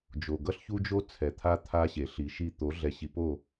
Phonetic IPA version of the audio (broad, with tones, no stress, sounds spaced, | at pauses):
d͡ʒ o˨ ɡ ʌ˦ ɬ ç u˦ d͡ʒ o˦ t͡sʰ ɛ˨ t̪ʰ a˦ t̪ʰ a˦ ɕ e˨ ɬ i˨ ʃ i˦ t̪ o˨˦ ɮ ɛ˨ ɕ i˨ p o˦˨